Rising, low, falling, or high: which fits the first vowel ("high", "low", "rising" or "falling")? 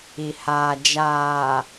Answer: low